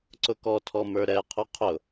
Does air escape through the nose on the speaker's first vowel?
no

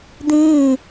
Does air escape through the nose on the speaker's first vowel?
yes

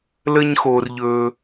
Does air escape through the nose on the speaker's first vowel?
no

